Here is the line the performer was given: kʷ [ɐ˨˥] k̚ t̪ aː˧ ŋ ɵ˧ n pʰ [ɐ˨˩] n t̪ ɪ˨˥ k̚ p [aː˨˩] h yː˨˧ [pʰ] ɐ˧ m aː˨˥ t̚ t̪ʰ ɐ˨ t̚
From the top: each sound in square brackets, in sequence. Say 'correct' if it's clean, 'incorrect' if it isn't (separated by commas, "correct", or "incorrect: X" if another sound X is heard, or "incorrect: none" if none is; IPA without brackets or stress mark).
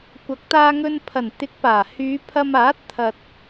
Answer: correct, correct, correct, correct